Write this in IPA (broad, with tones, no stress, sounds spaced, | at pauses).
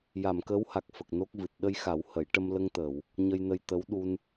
j a˨˩˨ m k əː˧˥ w h a˨˩ k̚ f ə˨˩ k̚ n o˦˥ k̚ v ɨ˨˩ t̚ ɗ ə˧ j x a˨˩˦ w h ə˨˩˦ j ʈ ə˧ m l ə˧ ŋ t̪ əː˨˩˨ w | ɲ ə˧ j n ə˧ j t̪ ə˧˥ w ɗ u˧ n